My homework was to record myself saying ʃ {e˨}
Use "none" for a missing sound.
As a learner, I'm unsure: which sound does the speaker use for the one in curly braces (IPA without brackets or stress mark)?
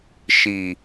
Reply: i˨